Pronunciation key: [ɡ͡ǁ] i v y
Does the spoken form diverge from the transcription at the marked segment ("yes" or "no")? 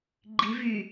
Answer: yes